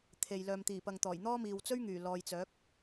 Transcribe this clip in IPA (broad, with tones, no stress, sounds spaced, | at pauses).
t̪ʰ e˨ j l œː˨ m t̪ iː˨˩ p ɐ˨ ŋ t̪ ɔː˨˩ j n̪ ɔː˥ m iː˨ w t͡s ɵ˥ ɥ ŋ yː˨˩ l ɔː˨ j t͡s œː˨˥ k̚